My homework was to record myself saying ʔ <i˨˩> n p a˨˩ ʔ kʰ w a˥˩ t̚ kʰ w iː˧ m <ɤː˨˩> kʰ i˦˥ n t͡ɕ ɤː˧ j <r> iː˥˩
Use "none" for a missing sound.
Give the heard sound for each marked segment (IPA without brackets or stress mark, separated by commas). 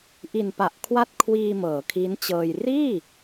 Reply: i˨˩, ɤː˩˦, r